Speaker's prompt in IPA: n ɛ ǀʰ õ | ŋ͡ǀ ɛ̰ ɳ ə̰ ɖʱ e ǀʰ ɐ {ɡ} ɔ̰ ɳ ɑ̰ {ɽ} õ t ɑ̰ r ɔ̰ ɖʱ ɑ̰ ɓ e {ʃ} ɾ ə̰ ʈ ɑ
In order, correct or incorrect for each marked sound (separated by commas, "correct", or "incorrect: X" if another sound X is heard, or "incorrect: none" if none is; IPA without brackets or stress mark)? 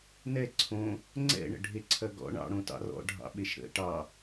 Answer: correct, correct, correct